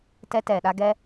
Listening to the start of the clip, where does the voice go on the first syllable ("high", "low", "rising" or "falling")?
high